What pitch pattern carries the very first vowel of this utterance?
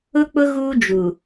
high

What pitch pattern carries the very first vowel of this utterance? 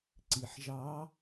low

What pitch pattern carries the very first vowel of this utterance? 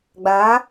rising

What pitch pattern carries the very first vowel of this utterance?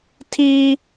high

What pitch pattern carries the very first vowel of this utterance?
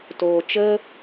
low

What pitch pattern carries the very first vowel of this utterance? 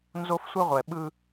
high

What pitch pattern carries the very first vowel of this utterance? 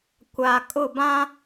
low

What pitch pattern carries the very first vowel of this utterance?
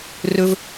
high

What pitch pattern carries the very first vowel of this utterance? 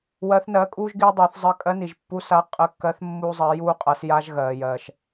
rising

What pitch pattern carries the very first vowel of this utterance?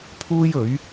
high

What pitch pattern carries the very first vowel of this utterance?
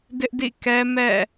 high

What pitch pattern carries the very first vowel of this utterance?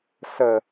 low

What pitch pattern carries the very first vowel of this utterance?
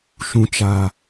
low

